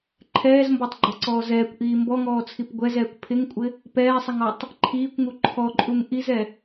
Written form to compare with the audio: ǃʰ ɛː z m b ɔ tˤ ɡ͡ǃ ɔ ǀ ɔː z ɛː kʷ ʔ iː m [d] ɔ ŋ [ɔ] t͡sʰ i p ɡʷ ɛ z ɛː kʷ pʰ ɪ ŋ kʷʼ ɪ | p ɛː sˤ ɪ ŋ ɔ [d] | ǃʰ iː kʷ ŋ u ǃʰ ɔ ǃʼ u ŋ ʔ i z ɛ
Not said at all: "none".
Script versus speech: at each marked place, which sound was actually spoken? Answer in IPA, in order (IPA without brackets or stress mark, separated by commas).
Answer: b, ɔː, tˤ